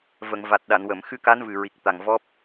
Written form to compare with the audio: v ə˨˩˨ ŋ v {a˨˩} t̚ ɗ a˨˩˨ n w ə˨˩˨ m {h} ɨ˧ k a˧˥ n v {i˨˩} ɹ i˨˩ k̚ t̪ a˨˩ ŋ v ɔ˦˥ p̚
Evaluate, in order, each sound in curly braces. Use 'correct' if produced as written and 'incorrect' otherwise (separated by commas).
correct, incorrect, incorrect